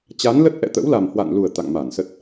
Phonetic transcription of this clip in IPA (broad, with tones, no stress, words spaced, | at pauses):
t͡ɕa˨˦nlə˦˥t̚ ʔɛ̰˧˨t̪ə̰˧˥wla˨˩m hwa̰˧˨nlu˨˩ə̯ t̪a̰˧˨ŋma˧˩nsə˦˥t̚